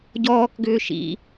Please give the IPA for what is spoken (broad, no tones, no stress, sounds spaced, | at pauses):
ɟ ɔː k ɡ ʏː ʃ ḭ